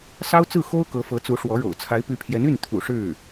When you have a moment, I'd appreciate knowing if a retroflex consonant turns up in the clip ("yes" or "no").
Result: yes